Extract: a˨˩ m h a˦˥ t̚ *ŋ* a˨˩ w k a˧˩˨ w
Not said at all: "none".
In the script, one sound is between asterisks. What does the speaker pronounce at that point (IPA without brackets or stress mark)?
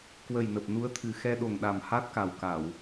k